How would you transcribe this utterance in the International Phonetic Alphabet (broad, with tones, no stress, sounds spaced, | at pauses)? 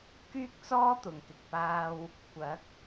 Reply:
k yː˥ k̚ t͡s ɔː˥ t̪ ʊ˨ ŋ k ɪ˨ k̚ p aː˥ w | kʷ ɐ˨˥ k̚